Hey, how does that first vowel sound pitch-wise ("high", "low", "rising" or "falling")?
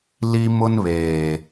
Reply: high